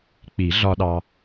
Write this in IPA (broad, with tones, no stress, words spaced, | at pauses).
k͡pi˨˩˦ɮɒ˧ɗɑ˧